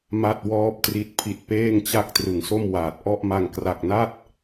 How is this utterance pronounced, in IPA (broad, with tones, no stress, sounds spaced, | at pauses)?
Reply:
m a˥˩ t̚ w ɔː˥˩ p̚ t r i˦˥ t̚ pʰ i˨˩ t̚ p eː˥˩ ŋ t͡ɕ a˥˩ k̚ t r ɯ˨˩ ŋ s o˥˩ m w aː˨˩ t̚ ʔ ɔ˥˩ ʔ m a˧ ŋ k r a˨˩ k̚ n a˥˩ t̚